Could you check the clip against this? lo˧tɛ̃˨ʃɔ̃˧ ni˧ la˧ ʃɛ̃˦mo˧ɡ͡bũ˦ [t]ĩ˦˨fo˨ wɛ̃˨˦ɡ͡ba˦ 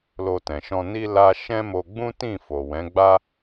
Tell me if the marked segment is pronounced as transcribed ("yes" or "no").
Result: yes